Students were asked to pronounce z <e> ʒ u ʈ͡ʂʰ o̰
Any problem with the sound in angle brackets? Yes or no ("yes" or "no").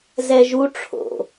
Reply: yes